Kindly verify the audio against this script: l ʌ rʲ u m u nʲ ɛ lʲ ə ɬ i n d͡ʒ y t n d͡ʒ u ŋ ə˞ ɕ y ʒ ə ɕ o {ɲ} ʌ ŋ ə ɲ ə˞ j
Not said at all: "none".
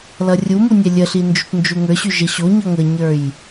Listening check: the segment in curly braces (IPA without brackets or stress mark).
ɲ